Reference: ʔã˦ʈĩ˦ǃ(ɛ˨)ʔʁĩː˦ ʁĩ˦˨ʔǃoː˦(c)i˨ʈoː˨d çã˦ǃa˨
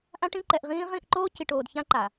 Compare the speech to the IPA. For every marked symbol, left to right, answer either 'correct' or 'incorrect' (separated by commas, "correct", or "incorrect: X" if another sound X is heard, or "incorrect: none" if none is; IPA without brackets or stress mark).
correct, correct